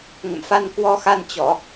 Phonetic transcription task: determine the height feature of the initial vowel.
mid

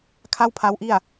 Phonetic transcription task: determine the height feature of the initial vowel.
low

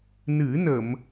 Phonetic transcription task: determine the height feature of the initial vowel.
high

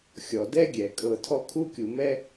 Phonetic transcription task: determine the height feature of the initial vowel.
mid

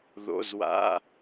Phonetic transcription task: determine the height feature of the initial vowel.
mid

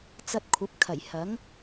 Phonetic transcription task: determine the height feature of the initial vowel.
low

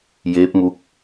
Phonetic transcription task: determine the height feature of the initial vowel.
mid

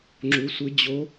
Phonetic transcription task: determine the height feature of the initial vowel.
high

